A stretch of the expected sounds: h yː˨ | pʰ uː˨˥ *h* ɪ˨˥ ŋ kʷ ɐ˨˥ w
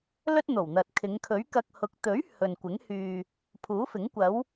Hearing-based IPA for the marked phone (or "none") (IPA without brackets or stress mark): f